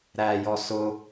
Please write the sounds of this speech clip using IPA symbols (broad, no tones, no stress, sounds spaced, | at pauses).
ɾ æ j ɔ s ʊ